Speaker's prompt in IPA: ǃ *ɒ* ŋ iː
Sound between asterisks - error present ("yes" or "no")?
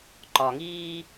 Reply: no